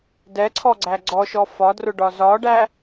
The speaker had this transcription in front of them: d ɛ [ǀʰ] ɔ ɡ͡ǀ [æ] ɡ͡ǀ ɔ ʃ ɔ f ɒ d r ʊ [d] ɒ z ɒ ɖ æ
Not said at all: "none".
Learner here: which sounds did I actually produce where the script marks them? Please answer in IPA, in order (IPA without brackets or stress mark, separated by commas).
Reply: ǀʰ, æ, ɖ